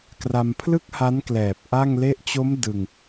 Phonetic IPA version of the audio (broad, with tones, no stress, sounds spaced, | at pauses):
k r a˧ m pʰ l ɯ˥˩ k̚ h a˦˥ n k l ɛː˨˩ p̚ ʔ a˥˩ ŋ l e˥˩ ʔ t͡ɕ o˦˥ m d ɯ˧ ŋ